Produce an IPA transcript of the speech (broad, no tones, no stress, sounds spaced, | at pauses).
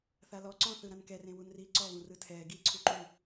θ a l ɔ ǀ ɔ̃ θ ɯ ɾ ã n k ɛ r ẽ w u n r iː ǀ ɔ β ũ r ɯ tʰ ɛː ɡ iː ǀʰ u ǃ u